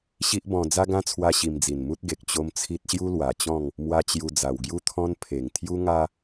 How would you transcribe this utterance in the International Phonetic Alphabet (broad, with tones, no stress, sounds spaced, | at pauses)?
ɕ i˦ ʔ b ɔ̃˧ d͡z a˦ ɡ ã˦ t͡sʰ w a˧ ɕ i˧ m d͡z i˨˩ n m u˦ t̚ ɡ e˨ k̚ t͡ɕ o˦ m t͡sʰ i˦ t̚ ɕ j u˦ l w a˨˩ t͡ɕ ɔ̃˥˧ ŋ | m w a˦ t͡ɕ j u˧ d͡z a˨˩ w ɡ j u˦ t̪ʰ ɔ̃˦ n pʰ e˨˩ ŋ t̪ʰ j u˦ ŋ a˦